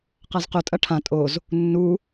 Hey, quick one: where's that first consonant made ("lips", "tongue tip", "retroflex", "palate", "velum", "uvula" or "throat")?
uvula